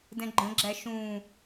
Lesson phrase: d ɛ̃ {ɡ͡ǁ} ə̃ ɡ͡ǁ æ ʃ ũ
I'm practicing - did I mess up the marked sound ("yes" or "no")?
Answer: yes